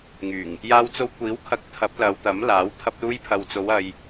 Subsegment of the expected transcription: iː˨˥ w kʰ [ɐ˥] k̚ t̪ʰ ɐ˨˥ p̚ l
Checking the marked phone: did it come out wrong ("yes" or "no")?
yes